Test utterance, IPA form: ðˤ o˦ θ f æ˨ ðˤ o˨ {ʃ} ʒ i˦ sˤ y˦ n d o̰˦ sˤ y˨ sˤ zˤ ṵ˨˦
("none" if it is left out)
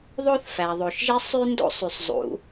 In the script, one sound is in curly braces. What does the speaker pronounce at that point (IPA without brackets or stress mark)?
ʃ